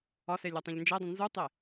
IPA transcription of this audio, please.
ɒ s e lʲ æ tˤ ĩ ʎ n d͡ʒ e dˤ ĩ n z u tˤ e

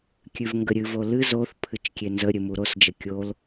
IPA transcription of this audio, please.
kʲ ʉ v ŋ ɡ ə ɾʲ ɨ v o l ɨ z o θ pʰ ɨ t͡ʃ kʲ e n z ə ɾʲ ɨ m u ɾ o s d͡ʒ ə kʲ o l

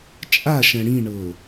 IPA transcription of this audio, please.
t͡ʃʼ a ʃ ɛ̃ ɽ ĩ ɳ ɤ

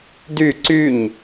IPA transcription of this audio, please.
d y ǀ y ɲ

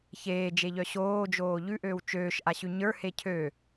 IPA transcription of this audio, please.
ç eː d͡ʒ e ʎ œ ɕ oː d͡ʒ oː ʎ ʉ ʔ øː w t͡ʃ øː ʃ ʔ a ɕ ʉ ɲ ə˞ h e cʰ ø

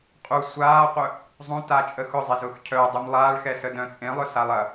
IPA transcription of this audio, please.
qʼ u sʷ aː qʷ œ | zˤ ũ t aː t͡ʃʼ ə x ʊ zˤ e z ʊː x cʰ œ dˤ u m lˠ aː ɭ x ɛ s ə d œ̃ t͡sʼ ẽ lˠ œ s a lˠ ɐ

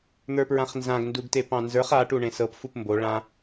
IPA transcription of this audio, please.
n̪ ə˞ p ɹ ã χ n z ã ɡ n d u ɡ t e p ɑ̃ n z ə˞ χ a ʈ u ɳ ẽ s ɤ p f u p m b o ɭ ã

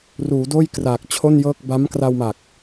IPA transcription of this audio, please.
r uː˩˦ d oː˥˩ j k r aː˨˩ k̚ t͡ɕʰ o˥˩ n j ɤː˥˩ k̚ b a˦˥ m k r a˧ w m a˨˩ k̚

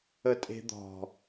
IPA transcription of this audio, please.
ə tʼ e̤ d̪ ɔ̤

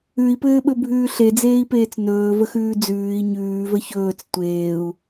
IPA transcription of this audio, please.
ʉ i̯ p ɘː ɓ ɵ bʱ ʉː ɬ e d͡z eː i̯ p eː t͡s n ɵː v ə x ʉː d͡z ʉː i̯ ɲ ʉː v ə ç ɵː t͡s tʷ eː u̯

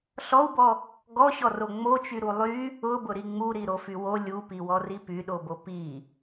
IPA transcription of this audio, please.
ɬ ɔ u̯ b ɔ | ɡ ɔ ɕ ɔ r o ŋ͡m o t͡ʃ y ɾ u lˠ y | ʊ b ʊ ɾ i ŋ͡m u ɾ i ɾ o f y w o lʲ u p i w ɔ r i p y ɗ o b o p i

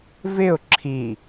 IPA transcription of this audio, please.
v ɪ ʊ̯ ǁʰ i

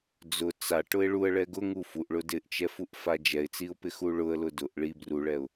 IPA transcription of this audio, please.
d͡z ʊ t͡s a ʈ ʊ ɪ̯ ɭ u ə̯ ɭ ɛ ɡ ʊ ŋ u f u ʔ ɭ ʊ d ɪ ʔ t͡ʃ ɛ f u ʔ f a d͡ʒ ɛ ɪ̯ t͡s i ʊ̯ p ɪ x u ɭ ʊ ə̯ l ʊ d ʊ ʔ ɭ i b r u ɭ ɛ ʊ̯

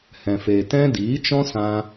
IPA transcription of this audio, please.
h ɛ̃˨ f eː˨ t ɛ̃˦ d iː˨˦ t͡ʃ ɔ̃˦ s ã˧

